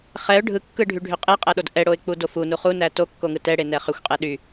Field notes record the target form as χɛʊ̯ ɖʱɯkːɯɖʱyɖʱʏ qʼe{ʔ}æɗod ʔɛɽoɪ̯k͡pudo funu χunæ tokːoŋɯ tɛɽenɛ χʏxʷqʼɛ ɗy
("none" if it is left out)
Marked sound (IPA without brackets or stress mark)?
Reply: qʼ